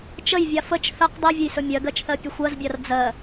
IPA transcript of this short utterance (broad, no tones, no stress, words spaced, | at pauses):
t͡ʃəjvʲa fət͡ʃ θəq dˤivʲəjsɵ mʲɜɡɜt͡ʃθɜ pʲəxʷɜzbʲar d͡zɜ